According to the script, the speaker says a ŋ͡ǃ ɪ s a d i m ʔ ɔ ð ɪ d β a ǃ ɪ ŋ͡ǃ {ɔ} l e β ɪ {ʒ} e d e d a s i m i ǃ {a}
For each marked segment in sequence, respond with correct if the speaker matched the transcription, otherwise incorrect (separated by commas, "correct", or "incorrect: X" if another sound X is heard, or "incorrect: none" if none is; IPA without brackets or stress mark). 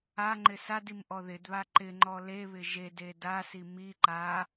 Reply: correct, correct, correct